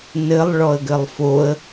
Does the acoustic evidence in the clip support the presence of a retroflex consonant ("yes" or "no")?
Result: yes